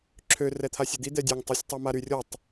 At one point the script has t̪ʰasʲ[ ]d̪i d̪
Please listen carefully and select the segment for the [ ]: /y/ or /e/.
e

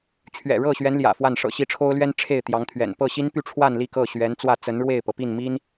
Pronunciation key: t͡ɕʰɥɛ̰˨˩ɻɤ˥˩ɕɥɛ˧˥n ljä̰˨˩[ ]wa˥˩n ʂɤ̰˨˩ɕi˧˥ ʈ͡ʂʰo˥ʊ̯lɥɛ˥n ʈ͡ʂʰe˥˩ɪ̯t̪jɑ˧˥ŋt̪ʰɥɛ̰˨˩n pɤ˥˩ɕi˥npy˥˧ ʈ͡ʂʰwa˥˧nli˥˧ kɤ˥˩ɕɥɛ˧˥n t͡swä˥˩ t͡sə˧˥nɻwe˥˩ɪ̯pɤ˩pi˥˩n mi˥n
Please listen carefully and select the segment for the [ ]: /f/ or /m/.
f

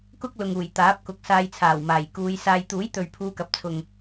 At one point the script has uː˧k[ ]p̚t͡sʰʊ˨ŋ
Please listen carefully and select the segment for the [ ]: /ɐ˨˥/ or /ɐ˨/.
ɐ˨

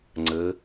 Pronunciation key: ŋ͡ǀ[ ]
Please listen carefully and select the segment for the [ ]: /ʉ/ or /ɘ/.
ɘ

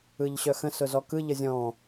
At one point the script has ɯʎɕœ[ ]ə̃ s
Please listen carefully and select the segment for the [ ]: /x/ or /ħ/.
x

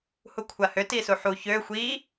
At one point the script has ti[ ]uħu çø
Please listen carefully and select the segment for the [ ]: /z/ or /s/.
s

